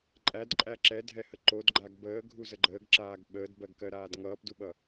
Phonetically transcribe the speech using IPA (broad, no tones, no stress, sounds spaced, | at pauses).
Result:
ǃʼ æ d ǃʼ æ ǁ ɛ dʱ ɛ h ə ǃ o d ɡ͡ǃ a ɡ b əː ɡʱ u z ə ɡ͡ǃ əː ɡ ǁ aː ɡ ɓ əː d b ɜ ɡ k ɜ ɾ aː d ŋ ʌː p d u ɓ ʌ